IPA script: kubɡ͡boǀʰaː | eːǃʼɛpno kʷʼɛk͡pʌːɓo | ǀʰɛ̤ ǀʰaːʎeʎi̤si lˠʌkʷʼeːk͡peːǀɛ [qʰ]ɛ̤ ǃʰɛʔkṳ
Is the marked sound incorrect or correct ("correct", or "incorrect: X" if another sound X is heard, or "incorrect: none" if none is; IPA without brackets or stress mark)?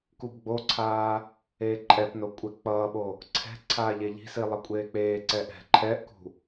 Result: incorrect: ʔ